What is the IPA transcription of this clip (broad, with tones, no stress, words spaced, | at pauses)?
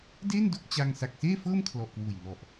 de˥˩ndo˥˩k̚t͡ɕa˧ŋ sa˨˩k̚seː˥˩fɤː˥˩m kʰlɔ˨˩ʔkwuː˨˩jnɔ˨˩ʔ